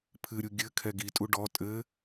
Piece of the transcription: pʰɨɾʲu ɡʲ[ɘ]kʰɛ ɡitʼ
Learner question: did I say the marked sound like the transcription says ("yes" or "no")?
yes